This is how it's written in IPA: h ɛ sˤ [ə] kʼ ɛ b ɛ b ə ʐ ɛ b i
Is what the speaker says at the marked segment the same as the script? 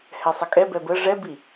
yes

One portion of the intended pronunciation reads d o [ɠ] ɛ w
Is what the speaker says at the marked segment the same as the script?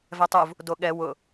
yes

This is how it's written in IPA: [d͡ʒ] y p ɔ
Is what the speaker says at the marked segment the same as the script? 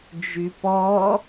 yes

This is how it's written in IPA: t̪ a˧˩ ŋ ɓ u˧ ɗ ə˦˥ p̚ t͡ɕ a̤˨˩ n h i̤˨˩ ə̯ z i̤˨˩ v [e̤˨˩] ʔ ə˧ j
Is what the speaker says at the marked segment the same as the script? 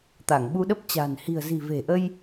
yes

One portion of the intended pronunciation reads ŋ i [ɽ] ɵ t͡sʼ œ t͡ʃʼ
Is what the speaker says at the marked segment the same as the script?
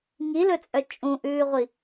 no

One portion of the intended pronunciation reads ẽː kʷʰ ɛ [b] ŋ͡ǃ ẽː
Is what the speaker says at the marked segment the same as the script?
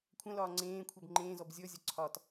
yes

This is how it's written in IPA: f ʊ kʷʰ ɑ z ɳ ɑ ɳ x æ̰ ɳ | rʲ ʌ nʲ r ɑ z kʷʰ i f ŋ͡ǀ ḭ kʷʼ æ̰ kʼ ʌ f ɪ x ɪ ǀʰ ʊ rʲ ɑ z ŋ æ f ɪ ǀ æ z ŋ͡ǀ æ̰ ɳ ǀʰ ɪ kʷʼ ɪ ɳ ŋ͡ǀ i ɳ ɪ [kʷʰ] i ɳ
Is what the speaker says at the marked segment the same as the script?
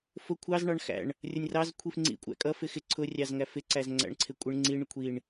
yes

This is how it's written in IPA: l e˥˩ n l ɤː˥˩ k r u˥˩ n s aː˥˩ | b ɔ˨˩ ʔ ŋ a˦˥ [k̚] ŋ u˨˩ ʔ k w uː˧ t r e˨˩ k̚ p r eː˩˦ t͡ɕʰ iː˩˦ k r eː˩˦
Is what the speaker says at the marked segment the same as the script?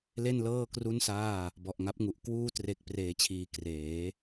no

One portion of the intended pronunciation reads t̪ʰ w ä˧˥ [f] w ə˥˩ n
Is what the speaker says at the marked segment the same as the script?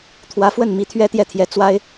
yes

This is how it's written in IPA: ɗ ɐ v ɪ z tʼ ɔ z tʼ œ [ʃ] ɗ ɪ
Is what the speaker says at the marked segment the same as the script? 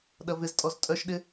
yes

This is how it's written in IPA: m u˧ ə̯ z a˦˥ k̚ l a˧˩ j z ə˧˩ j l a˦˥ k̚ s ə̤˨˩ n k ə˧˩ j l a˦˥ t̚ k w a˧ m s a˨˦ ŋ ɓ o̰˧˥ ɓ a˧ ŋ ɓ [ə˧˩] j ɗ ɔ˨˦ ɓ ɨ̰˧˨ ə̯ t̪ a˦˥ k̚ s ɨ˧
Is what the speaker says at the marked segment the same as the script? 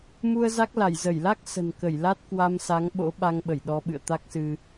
yes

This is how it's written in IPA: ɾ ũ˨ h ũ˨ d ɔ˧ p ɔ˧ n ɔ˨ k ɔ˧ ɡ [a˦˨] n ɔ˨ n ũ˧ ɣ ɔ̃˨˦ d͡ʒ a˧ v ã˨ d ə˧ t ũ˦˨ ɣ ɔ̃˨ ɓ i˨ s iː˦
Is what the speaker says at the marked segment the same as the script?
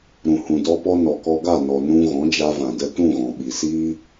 yes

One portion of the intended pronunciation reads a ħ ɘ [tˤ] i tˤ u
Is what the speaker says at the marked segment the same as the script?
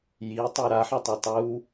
yes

